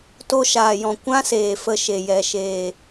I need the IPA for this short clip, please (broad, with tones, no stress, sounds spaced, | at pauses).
t o˧ ʃ aː˨ j ɔ̃˨ kʷ ã˦ s eː˨ f ə˧ ʃ e˨ j ɛ˨ ʃ eː˨